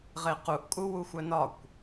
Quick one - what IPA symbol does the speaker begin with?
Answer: ʁ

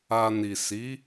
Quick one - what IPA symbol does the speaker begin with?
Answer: a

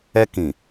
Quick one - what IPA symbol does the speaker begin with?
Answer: ɛ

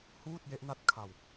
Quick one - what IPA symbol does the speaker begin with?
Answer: h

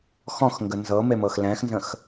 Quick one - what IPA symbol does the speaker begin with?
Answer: x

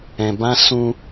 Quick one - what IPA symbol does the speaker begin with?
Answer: ɛ̃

